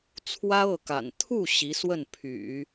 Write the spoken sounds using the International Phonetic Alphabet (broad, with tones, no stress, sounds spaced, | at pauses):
t͡sʰ w ä˥ ɤ˥˩ k a̰˨˩ n t̪ʰ u˥˩ ɕ i˧˥ s w ə˥˩ n pʰ y̰˨˩˦